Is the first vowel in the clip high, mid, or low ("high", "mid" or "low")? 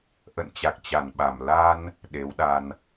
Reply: mid